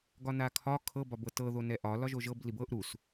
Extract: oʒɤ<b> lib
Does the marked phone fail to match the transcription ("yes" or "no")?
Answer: no